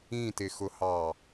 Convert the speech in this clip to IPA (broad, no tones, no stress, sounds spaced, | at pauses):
ĩ t ɪ x ʊ h ɑ